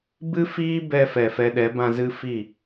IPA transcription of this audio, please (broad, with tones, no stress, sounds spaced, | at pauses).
b ɨ˦ f iː˦ b ɛ˧ f ɛ˨ f ɛ˧ ɗ ɛ˨˦ b ã˧ z ɨ˦ f i˦˨